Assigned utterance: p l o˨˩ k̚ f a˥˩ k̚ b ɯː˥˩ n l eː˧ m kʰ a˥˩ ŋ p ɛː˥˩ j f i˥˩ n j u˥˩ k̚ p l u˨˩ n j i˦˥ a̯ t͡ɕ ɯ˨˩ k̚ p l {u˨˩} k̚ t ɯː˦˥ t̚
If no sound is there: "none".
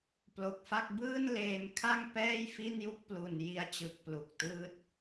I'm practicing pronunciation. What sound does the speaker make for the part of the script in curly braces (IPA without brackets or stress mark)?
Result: u˨˩